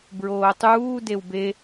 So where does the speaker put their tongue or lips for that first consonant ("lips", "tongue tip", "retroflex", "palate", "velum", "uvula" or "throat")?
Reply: lips